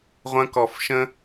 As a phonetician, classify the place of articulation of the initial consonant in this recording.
uvular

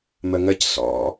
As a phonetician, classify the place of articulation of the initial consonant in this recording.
labial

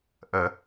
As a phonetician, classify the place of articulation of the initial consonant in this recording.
glottal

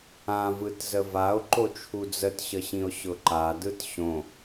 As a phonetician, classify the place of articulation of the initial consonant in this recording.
labial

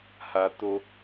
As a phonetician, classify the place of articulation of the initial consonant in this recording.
glottal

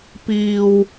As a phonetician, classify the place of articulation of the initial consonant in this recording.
labial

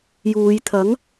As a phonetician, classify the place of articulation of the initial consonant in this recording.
palatal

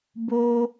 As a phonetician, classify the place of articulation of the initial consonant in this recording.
labial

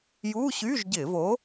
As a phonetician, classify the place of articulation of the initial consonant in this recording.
palatal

